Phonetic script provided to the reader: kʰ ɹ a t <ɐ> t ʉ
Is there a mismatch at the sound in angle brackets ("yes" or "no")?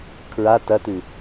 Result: no